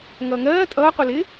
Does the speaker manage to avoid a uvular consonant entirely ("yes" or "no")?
no